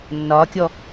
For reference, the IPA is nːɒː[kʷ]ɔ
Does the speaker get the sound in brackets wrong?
yes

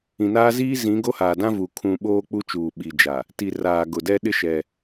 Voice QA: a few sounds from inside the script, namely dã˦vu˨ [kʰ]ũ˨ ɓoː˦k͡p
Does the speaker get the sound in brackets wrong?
no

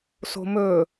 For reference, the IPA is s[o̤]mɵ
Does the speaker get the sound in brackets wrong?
no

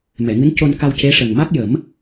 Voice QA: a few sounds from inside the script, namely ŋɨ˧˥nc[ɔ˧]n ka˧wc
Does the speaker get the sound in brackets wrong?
yes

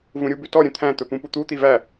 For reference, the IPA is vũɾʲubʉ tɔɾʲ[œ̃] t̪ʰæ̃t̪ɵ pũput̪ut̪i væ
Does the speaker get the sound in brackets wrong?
no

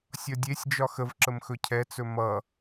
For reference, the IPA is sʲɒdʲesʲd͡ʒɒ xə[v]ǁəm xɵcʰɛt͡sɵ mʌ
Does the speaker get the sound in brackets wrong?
no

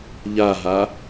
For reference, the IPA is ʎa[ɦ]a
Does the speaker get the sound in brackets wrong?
no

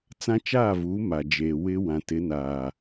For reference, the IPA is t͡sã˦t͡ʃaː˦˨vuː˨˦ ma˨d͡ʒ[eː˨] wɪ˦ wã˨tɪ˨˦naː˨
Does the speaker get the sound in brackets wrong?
no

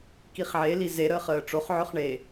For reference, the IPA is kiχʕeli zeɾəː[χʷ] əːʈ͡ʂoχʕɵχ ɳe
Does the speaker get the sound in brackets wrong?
yes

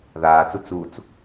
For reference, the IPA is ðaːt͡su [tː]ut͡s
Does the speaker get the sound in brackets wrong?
yes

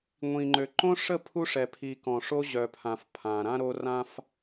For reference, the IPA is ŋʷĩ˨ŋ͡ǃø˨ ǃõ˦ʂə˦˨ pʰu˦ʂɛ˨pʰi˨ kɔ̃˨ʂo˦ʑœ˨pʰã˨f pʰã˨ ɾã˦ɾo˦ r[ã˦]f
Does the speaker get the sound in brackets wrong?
no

